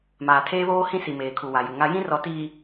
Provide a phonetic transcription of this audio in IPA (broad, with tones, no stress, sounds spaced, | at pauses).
m aː˨ tʰ eː˦ β oː˦ h ĩ˦ s i˨ m eː˨ kʰ u˨ w a˨ j u˨ ŋ a˦ j ĩ˦ r ɔ˨ t iː˨